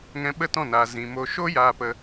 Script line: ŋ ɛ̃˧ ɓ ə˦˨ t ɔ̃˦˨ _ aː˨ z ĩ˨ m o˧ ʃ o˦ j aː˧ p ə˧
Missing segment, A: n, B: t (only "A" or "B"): A